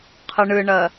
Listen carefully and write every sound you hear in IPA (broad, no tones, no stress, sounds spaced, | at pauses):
qʰ ɨ ɳ ɨ ɳ ɜ